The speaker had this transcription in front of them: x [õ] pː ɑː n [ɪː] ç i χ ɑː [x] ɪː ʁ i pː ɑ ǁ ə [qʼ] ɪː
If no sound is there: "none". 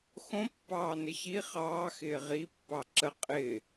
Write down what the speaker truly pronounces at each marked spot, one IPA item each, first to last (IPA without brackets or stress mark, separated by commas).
õ, ɪ, x, qʼ